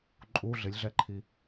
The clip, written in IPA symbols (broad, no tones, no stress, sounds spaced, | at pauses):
ǃʼ u ɮ ɪ lʲ ɮ ɛ ǃʰ i